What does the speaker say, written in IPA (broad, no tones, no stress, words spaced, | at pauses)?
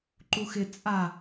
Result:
ǃuxɪ t͡sʼa